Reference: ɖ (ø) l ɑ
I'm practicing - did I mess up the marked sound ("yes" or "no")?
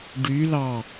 yes